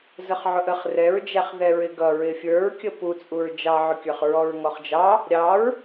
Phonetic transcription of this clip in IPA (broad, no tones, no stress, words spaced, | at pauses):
zəχʕʊʔəχ rɛɹd͡ʒæχ ðɛɹɪɡʌ ɹɪfʲə˞ɹkʲə put͡sʼuɹ d͡ʒɑʕʊkʲə˞χ ɹɔɹŋɔχd͡ʒɑ | ɾʲɑɹ